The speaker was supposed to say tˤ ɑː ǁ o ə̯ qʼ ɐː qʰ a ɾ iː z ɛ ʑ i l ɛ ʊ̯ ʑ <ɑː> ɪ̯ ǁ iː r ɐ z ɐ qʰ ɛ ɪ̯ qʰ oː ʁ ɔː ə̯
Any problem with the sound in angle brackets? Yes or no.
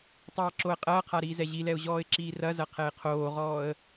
yes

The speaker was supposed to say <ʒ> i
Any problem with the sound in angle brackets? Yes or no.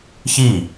yes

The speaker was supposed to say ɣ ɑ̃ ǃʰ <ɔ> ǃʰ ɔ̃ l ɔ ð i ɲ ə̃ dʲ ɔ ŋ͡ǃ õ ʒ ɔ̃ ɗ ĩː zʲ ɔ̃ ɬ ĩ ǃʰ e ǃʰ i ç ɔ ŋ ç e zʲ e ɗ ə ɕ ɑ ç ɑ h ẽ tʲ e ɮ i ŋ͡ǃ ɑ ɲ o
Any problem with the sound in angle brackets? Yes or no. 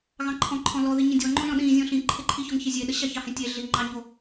yes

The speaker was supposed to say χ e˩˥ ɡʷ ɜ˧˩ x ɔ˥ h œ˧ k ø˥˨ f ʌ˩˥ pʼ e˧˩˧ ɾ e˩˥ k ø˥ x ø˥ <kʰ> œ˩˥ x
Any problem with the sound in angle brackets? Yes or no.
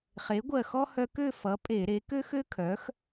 no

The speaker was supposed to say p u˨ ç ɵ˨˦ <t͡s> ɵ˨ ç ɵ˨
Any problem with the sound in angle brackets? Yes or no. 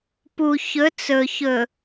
no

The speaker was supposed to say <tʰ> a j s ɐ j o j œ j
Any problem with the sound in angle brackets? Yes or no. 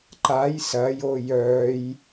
yes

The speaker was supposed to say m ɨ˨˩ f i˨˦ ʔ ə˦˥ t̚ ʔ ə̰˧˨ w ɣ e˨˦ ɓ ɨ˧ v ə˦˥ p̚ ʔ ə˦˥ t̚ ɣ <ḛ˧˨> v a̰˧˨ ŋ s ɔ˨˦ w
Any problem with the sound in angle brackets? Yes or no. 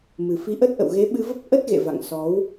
no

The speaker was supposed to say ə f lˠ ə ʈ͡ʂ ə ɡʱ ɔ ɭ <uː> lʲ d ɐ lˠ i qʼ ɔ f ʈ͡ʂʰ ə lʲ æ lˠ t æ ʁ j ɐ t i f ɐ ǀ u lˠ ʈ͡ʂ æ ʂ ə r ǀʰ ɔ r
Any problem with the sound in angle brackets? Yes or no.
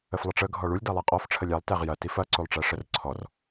yes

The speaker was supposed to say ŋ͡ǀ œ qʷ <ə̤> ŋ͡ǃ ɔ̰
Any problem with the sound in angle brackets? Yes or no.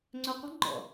no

